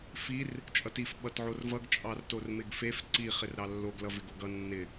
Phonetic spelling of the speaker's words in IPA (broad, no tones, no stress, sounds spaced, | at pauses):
f i r | t͡ʃʼ ʌ t i f ɓ ʌ t ʕ o r v ʌ ɡ t͡ʃʼ ɑ r t o r m ɪ ɡ f e f ǀ i χ ɪ r ɾ ɑ lː o ɡ l ʌ v ɪ ɡ o ɡ ʌ nː ɪ